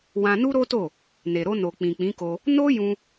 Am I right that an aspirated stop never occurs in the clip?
yes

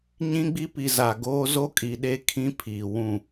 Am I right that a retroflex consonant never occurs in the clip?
yes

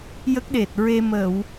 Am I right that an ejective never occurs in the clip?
yes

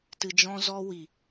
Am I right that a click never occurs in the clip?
yes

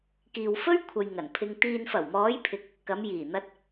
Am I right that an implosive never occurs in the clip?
yes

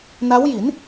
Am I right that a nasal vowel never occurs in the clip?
yes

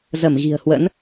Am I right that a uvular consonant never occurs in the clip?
yes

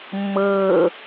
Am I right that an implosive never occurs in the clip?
yes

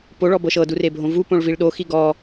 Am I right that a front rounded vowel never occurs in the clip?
yes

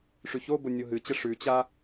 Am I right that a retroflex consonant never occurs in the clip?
no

